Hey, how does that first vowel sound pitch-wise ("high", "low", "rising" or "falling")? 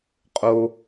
low